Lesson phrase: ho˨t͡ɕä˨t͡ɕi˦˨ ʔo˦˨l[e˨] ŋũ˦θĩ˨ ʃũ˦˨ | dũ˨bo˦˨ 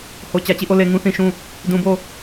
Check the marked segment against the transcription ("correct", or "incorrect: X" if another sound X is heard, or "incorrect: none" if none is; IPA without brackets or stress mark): correct